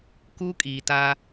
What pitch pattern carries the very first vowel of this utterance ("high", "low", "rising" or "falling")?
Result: high